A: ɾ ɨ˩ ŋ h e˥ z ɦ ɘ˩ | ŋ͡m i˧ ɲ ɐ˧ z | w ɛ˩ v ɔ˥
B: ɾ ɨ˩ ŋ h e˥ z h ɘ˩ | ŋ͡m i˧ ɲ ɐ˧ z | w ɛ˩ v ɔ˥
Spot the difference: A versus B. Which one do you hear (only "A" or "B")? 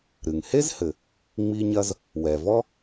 B